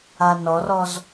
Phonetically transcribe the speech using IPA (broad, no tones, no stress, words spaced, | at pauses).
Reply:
anɔrɔz